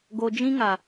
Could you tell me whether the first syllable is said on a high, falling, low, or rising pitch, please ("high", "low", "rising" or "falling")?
low